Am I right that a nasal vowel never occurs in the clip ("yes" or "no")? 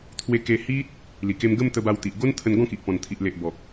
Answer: no